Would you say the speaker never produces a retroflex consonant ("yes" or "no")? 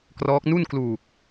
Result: yes